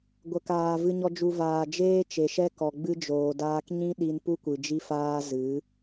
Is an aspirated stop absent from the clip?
yes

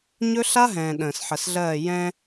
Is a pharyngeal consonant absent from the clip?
no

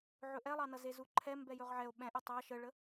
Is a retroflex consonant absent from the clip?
no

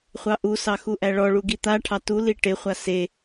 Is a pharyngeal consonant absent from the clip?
yes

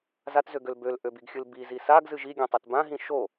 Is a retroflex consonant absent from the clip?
yes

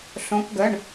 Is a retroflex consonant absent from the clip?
no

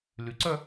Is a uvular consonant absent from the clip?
yes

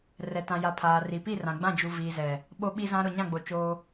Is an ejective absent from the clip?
yes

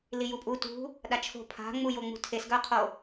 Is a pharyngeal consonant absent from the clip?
yes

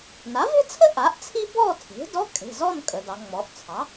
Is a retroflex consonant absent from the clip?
yes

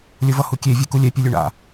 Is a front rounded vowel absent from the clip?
yes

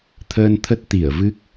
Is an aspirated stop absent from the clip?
no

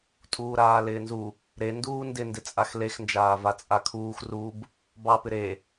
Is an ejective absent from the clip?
no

